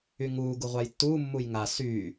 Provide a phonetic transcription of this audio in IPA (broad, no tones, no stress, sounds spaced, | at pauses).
y ŋ uː ɡ u ʁʷ a j tː uː mː u j ŋ a s yː